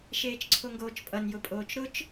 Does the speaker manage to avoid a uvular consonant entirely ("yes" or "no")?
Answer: yes